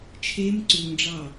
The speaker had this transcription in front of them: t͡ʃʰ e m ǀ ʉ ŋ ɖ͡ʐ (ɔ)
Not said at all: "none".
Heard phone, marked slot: ɑ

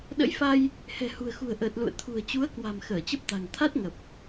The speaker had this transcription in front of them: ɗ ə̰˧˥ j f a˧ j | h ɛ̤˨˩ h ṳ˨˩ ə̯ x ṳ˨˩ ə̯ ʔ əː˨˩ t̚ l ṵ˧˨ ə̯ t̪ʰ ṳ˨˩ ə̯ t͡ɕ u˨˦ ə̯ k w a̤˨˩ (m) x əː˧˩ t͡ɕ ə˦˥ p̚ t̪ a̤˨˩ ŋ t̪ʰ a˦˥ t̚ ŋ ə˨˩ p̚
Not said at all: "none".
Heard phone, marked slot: m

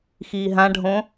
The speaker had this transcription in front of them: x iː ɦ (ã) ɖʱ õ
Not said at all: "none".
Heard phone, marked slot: ã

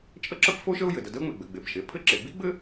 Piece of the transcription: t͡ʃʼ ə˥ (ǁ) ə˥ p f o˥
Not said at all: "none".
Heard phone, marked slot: ǁ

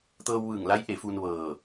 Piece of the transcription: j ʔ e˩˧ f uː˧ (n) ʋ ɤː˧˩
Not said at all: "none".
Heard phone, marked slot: n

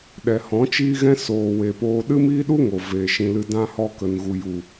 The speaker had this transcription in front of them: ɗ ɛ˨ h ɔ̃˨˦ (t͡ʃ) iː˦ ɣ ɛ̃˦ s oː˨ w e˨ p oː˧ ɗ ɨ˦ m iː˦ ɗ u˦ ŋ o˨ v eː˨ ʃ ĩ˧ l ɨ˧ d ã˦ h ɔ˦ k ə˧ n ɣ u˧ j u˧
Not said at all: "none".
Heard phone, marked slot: t͡ʃ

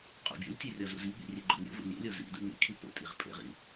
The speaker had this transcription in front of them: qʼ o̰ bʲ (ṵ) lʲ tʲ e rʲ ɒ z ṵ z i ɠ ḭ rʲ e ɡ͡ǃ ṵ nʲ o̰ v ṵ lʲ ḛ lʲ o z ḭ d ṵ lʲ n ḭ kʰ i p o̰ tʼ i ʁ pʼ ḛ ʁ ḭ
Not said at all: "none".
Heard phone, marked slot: o̰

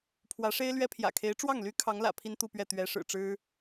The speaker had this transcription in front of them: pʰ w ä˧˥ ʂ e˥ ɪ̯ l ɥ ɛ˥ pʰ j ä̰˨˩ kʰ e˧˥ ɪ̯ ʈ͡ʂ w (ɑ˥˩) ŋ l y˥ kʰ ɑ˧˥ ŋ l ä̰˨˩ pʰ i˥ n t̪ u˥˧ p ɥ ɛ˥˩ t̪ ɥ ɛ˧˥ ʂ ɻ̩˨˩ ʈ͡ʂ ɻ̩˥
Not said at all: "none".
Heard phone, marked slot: ɑ˥˩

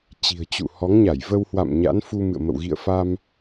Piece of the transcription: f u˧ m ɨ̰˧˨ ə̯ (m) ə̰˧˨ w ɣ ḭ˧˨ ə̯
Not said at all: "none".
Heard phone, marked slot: m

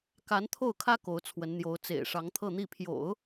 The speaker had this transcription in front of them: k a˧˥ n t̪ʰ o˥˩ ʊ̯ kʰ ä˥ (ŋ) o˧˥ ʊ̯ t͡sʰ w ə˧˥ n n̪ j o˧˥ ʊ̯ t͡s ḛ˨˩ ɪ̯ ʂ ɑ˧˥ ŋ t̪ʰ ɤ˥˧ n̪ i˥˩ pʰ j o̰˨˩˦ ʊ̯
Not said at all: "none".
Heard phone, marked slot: k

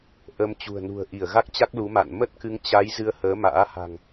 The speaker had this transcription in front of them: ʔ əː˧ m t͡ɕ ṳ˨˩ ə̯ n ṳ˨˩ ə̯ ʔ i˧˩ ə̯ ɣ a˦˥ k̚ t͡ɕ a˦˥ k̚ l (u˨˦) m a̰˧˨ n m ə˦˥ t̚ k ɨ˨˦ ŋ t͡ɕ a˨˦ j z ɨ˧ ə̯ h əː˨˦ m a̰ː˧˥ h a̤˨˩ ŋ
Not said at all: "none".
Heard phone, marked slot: u˨˦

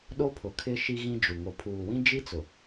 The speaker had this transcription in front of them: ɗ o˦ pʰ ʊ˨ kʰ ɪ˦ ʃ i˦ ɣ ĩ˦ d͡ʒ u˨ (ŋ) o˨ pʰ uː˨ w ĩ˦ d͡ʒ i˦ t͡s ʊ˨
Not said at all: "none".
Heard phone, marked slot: ŋ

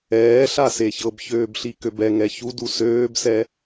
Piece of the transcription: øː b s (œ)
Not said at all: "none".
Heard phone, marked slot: ɛ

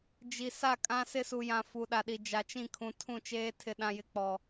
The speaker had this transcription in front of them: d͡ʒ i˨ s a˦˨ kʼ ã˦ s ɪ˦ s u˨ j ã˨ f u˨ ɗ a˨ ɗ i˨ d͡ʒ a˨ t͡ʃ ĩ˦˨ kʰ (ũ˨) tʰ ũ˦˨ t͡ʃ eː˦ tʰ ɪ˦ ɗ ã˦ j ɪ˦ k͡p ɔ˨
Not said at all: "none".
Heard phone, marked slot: ũ˨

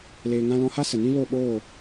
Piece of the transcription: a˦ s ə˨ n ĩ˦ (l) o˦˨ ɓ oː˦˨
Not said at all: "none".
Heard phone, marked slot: l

